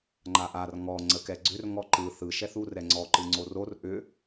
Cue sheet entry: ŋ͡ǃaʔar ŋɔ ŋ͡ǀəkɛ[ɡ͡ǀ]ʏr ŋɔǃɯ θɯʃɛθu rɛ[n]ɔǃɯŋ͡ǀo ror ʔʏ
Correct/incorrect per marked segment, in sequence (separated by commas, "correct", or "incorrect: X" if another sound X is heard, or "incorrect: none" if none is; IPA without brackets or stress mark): correct, incorrect: ŋ͡ǀ